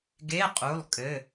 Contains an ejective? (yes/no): yes